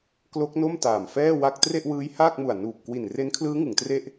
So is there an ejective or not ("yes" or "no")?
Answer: no